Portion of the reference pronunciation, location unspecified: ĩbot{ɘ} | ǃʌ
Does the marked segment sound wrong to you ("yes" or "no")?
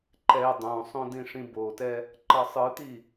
yes